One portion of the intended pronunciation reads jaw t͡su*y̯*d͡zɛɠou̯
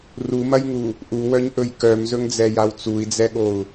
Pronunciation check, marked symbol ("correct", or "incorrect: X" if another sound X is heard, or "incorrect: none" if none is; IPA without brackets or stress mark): incorrect: i̯